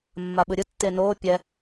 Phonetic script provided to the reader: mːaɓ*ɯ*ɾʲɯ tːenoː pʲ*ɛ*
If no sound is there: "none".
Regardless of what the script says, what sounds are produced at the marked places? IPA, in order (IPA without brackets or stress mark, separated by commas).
ɯ, ɛ